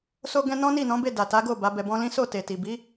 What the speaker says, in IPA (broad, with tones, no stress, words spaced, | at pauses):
so˧ɡɛ̃˧ nɔ̃˦ni˦˨nɔ̃˨˦ be˦˨ da˨ta˨˦ɡo˦˨ ba˨˦bɛ˧bɔ̃˦ lĩ˦ so˦˨te˨ti˨ bi˨˦